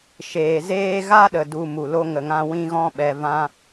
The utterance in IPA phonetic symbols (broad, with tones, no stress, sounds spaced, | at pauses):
ʃ eː˨ z eː˦ ɣ a˦ ɗ ə˨ d u˨ m u˨ l o˧ ŋ ə˨ ŋ ã˧ w ĩ˦ ɣ ɔ̃˦ ɓ ɛ˧ v ã˦